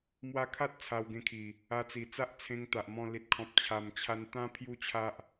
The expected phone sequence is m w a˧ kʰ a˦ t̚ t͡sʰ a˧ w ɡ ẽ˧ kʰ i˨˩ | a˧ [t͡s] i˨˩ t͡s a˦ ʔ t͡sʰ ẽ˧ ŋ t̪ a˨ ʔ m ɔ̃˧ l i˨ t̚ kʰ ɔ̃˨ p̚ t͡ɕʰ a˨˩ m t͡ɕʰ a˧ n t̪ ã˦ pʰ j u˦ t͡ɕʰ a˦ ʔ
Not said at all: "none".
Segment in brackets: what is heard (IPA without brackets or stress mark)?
t͡s